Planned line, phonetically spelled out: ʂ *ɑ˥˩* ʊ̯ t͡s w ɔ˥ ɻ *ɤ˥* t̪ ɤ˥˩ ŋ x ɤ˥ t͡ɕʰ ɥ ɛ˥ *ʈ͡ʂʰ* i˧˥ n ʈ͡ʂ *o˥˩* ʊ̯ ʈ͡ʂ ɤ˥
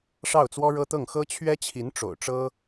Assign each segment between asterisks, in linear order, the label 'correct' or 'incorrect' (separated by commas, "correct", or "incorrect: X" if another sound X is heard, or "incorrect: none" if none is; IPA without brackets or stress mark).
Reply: correct, correct, incorrect: t͡ɕʰ, incorrect: o̰˨˩